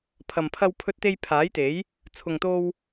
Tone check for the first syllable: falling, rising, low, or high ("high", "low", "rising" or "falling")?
low